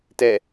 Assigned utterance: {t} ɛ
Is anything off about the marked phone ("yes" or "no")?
no